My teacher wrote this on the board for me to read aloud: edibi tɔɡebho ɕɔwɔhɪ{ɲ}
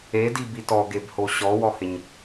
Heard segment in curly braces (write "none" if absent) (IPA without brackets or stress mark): ɲ